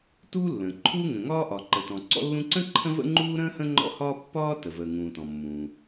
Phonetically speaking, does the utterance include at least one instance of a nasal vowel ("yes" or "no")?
yes